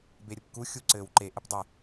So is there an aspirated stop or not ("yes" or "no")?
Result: no